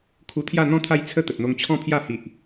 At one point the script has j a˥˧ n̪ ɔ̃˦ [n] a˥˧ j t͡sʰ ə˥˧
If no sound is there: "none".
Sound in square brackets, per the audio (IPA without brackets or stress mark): t̪ʰ